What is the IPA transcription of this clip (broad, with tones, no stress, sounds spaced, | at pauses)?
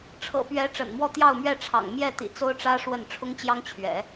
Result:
ʈ͡ʂʰ ɤ̰˨˩ p ɥ ɛ˧˥ ʈ͡ʂ ə̰˨˩ n m w ɔ˥˧ t̪ j ɑ˥˧ ʊ̯ m ɥ ɛ˥˩ ʈ͡ʂʰ ɑ̰˨˩ ŋ m j ɛ˥˩ t̪ ḭ˨˩ t͡s o˥ ʊ̯ ʈ͡ʂ ä˥ ʂ w ə˥˩ n ʈ͡ʂʰ ʊ˥ ŋ t͡ɕ j ɑ˥ ŋ t͡ɕʰ ɥ ɛ̰˨˩˦